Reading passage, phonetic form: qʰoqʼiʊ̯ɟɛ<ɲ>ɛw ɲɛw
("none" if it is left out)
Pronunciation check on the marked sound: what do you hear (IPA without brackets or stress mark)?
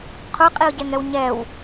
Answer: ŋ